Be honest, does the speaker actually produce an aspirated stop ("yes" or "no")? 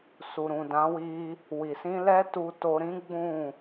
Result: no